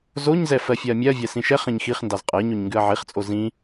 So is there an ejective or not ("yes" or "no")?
yes